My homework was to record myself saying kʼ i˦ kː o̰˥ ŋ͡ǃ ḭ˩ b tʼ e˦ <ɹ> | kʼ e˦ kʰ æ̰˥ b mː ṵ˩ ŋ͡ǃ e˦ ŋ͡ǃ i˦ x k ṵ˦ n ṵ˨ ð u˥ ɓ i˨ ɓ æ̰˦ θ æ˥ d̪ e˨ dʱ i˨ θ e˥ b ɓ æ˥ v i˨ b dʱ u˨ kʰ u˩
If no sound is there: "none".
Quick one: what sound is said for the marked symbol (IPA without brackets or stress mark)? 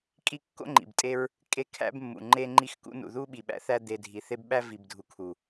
ɹ